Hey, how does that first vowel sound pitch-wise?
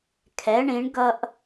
rising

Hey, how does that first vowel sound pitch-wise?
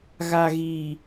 low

